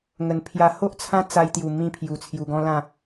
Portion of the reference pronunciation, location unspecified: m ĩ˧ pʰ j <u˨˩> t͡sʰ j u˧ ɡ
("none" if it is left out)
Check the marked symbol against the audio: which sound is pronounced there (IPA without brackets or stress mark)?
u˨˩